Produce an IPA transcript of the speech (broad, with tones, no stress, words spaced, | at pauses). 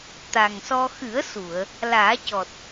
t̪a˨˩ŋsɔ˧ xɨ˨˩˦ə̯su˨˩˨ə̯ | laː˨˩˦cɔ˨˩t̚